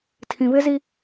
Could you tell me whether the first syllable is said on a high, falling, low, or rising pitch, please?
low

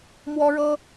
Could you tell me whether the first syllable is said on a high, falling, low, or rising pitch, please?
high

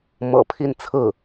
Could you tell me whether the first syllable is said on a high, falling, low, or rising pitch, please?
low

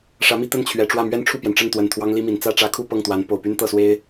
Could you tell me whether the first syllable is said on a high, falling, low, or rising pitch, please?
rising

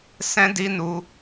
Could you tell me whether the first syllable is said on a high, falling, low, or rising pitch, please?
high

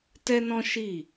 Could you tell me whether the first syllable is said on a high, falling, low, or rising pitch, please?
high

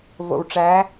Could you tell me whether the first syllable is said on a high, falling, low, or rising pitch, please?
low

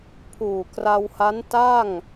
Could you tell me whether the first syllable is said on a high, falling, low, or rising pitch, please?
low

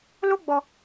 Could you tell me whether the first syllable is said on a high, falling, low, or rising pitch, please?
high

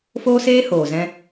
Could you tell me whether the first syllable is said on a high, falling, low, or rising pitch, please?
high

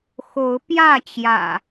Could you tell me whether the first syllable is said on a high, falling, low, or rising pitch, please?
rising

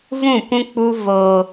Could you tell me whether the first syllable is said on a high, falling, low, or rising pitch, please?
falling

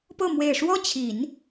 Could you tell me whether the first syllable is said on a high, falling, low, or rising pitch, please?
falling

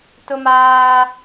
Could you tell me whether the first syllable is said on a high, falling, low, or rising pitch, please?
high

